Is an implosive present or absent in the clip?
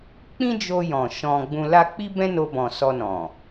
absent